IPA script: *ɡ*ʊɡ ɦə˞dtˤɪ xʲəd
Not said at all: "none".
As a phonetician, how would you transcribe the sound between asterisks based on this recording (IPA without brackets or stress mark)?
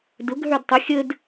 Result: d